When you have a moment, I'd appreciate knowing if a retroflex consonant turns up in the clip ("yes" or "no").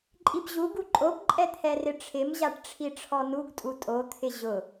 yes